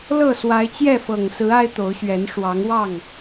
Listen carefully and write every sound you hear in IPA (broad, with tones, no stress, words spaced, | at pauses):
lɤ˥˨ swa˨˦ɪ̯t͡ɕjɛ˥˨fɤ˨˩ŋsɹ̩˨˦ a˦ɪ̯t̪o˨˦ʊ̯ɕɥɛ˨˦n ʂwɑ˨˦ŋwɑ˥˨ŋ